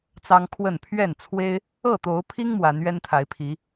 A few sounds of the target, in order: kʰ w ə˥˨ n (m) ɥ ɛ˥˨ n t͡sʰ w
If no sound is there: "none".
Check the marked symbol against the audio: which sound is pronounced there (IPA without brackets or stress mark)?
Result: pʰ